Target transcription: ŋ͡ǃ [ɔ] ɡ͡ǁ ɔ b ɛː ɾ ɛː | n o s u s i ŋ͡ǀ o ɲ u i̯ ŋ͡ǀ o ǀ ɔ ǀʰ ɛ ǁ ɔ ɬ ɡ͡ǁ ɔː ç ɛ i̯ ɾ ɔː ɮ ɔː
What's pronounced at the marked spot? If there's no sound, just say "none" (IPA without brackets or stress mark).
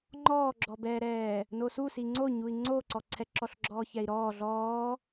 ɔː